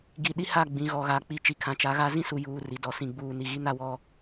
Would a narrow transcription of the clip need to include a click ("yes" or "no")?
no